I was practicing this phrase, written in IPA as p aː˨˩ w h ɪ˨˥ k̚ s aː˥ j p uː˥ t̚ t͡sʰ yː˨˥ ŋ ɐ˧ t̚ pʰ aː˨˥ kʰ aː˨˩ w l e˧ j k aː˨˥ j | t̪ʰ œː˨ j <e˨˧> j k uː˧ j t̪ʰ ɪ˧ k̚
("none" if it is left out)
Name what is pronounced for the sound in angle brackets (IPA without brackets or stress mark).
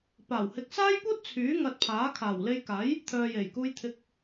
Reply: e˨˩